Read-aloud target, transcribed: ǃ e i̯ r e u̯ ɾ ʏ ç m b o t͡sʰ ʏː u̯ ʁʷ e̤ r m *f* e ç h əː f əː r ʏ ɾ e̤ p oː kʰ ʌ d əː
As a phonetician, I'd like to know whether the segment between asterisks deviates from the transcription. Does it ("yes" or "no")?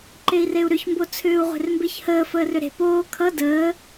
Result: yes